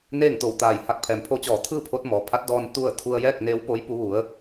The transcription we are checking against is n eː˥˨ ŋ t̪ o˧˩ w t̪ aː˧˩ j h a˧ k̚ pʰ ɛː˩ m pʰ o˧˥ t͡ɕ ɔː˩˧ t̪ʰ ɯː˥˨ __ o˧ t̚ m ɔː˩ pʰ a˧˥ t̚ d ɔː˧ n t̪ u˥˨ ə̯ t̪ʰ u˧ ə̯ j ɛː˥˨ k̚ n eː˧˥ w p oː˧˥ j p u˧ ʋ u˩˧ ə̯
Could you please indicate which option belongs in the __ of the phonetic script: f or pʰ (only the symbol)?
pʰ